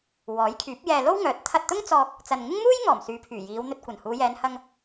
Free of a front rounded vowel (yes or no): no